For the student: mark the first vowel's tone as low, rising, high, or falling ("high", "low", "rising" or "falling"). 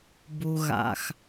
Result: low